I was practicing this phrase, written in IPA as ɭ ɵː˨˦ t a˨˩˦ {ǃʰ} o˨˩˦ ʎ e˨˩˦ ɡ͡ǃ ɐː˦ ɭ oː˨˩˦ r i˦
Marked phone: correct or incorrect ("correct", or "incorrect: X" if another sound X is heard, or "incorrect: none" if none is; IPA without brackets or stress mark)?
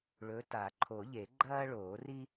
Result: correct